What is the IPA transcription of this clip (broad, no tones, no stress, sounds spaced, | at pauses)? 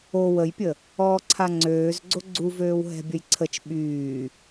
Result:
o w ə j pʲ ə | ɔː ǀʰ a ŋ͡ǀ øː z ɡ͡ǀ o ɡ͡ǀ u v øː w ɦ ɛ̤ bʲ ə j ǀʰ ə t͡ʃ ɓ yː